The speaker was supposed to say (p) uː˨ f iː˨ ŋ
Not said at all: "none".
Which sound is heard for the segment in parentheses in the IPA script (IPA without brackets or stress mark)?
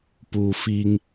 p